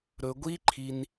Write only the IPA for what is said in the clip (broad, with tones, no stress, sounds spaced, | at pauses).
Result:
ɾ ɵ˧ ɡʷ i˦ ǃʰ i˧ n